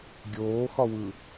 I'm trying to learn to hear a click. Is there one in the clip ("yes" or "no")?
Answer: no